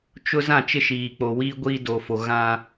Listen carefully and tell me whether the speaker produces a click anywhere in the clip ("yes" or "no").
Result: no